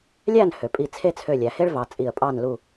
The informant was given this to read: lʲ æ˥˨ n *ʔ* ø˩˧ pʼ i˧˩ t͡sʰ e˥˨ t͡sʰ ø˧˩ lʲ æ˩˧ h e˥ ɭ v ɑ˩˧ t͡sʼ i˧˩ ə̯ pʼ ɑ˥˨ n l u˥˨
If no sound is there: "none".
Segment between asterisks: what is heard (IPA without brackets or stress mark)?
h